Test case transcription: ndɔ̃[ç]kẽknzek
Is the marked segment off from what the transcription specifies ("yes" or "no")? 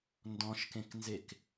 yes